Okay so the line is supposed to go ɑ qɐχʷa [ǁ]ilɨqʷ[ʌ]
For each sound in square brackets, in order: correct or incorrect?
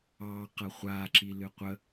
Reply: correct, incorrect

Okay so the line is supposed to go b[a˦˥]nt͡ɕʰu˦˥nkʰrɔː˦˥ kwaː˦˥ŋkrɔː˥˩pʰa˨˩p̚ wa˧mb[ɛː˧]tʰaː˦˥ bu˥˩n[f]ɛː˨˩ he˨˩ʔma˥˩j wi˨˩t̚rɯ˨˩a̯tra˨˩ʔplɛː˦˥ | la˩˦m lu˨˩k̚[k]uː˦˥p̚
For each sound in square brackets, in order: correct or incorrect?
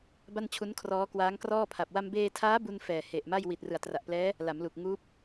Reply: incorrect, incorrect, correct, incorrect

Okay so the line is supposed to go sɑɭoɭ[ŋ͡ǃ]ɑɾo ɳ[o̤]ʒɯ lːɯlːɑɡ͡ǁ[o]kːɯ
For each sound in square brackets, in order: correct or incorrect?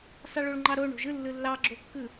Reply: correct, correct, correct

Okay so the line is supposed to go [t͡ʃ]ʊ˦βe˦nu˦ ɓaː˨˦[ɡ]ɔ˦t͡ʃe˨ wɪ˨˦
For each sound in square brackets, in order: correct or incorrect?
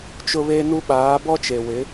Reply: correct, incorrect

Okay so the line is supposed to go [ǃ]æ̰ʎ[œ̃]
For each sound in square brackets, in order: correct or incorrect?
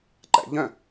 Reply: correct, correct

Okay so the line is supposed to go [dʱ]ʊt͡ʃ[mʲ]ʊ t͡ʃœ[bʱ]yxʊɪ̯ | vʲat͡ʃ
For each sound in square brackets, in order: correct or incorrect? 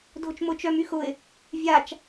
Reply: correct, incorrect, incorrect

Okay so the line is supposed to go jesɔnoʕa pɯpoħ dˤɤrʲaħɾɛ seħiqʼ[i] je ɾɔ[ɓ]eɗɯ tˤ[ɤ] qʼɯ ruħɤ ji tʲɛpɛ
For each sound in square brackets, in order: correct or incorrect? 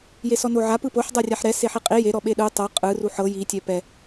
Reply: correct, correct, correct

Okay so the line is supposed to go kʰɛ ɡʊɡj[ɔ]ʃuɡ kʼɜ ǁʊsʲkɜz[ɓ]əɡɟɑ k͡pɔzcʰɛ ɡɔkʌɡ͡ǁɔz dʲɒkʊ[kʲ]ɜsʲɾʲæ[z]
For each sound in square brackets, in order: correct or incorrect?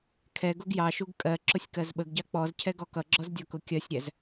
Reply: incorrect, correct, correct, correct

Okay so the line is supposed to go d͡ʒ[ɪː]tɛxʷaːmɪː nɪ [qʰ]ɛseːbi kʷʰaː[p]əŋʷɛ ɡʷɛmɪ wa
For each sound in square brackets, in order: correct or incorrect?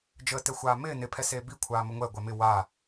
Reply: incorrect, incorrect, incorrect

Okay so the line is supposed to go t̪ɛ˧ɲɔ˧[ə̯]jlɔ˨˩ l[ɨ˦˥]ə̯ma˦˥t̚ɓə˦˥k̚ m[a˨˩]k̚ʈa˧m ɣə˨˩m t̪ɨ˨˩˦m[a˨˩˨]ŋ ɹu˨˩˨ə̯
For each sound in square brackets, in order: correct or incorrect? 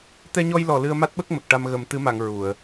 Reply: incorrect, incorrect, incorrect, correct

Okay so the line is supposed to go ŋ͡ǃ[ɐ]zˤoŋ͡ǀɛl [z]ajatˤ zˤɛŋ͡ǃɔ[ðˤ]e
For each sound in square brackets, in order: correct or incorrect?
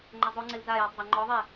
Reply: correct, correct, correct

